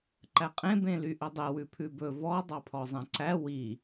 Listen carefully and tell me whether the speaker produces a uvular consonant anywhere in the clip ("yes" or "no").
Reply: yes